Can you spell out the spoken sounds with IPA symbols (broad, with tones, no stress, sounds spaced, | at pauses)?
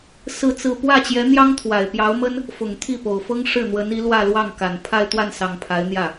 s ɹ̩˥˧ t͡s ɹ̩˥˧ p w ä˥˩ t͡ɕ j ɛ˧˥ n̪ j ɑ˥ ŋ t̪ʰ w a˨˩ ɪ̯ p j ɑ˧˥ ʊ̯ m ə˥ n | f ʊ˨˩ ŋ t̪ʰ i˥˩ p o˨˩ ʊ̯ f ɤ˥ ŋ ʂ ɻ̩˥˩ n̪ w ə˧˥ n i˧˥ l w ä˥˧ l w ɑ˥˩ ŋ k a˨˩ n pʰ a˥˧ ɪ̯ t̪ w a˥˩ n s ɑ˨˩ ŋ pʰ a˧˥ ɪ̯ n̪ j ä˥˩